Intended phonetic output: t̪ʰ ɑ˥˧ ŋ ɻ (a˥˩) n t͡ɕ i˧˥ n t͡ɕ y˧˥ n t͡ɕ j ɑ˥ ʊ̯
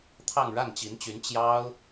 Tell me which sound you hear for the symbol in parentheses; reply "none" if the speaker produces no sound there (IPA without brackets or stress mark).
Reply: a˥˩